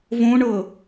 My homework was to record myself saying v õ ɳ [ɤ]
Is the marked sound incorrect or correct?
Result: correct